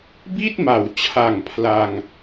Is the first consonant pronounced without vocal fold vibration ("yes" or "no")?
no